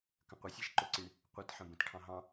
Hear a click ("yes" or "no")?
yes